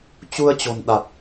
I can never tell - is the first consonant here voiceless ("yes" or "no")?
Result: yes